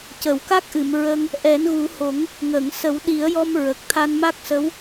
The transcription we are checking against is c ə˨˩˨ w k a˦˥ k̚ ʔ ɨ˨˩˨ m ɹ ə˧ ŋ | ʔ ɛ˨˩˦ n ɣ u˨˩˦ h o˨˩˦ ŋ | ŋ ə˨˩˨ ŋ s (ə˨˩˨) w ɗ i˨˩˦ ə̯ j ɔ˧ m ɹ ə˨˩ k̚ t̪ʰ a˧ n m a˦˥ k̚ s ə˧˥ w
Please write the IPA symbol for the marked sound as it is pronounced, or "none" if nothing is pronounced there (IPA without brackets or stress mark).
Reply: ə˨˩˦